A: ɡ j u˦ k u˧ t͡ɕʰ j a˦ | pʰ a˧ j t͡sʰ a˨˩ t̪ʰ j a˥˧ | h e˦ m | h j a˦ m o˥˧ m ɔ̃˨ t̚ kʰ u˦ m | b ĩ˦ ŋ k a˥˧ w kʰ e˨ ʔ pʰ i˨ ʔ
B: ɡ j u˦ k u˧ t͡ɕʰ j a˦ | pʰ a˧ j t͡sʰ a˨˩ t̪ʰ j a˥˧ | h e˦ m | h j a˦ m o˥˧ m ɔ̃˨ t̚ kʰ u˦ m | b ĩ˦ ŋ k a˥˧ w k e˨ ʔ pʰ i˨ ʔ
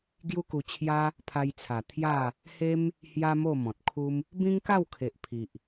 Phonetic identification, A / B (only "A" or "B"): A